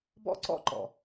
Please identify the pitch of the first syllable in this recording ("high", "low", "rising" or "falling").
high